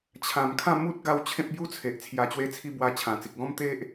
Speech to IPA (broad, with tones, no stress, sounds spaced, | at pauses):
t͡ɕʰ ã˨˩ m kʰ ã˥˧ m u˦ t̚ ɡ a˧ w t͡ɕʰ ẽ˦ p̚ b j u˦ t͡sʰ e˨ ʔ t͡sʰ j a˨˩ t͡ɕ w e˧ t͡sʰ i˧ b w a˧ t͡ɕʰ ã˨˩ t͡s i˨ k̚ ɡ ɔ̃˦ m t̪ e˦ ʔ